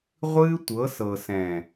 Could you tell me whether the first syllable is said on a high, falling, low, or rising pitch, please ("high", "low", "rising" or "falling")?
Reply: high